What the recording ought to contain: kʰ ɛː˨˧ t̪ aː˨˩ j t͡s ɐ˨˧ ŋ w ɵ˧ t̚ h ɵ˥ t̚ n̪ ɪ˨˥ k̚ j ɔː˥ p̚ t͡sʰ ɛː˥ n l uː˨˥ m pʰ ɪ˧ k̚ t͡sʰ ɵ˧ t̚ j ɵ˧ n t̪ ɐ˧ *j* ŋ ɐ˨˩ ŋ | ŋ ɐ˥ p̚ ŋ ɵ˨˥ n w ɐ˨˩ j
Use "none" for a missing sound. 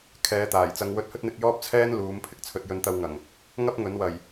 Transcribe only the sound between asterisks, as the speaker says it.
w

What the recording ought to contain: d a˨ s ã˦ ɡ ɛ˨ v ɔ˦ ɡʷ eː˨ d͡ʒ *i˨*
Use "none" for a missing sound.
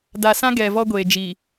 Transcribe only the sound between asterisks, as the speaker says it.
i˨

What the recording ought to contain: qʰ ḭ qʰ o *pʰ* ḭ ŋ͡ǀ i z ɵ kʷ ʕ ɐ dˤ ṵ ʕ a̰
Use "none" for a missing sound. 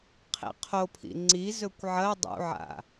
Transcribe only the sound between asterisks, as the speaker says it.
pʰ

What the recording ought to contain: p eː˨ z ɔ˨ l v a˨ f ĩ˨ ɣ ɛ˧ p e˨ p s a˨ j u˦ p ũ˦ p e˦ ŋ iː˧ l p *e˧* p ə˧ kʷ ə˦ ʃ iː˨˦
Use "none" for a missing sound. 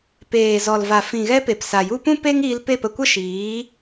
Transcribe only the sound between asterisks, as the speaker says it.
e˦˨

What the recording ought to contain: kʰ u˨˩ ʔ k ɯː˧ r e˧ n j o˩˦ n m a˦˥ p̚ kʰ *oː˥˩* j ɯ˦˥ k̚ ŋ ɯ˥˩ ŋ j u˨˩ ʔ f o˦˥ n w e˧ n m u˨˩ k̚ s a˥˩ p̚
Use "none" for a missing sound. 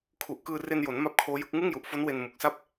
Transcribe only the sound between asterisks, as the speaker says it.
oː˦˥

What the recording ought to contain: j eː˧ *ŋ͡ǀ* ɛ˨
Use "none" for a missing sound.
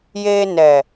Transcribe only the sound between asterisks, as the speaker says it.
n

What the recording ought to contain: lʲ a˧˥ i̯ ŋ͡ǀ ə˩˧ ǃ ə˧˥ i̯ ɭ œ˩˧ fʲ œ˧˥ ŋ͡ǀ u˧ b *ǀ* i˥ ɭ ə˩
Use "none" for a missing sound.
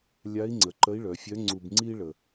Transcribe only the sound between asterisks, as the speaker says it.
ŋ͡ǀ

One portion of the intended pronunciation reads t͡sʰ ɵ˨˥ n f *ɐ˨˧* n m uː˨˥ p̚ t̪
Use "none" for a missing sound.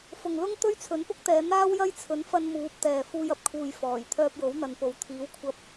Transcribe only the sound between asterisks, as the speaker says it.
ɐ˧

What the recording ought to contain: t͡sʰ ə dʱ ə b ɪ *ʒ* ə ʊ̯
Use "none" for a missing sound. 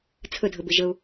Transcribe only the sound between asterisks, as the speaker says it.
ʒ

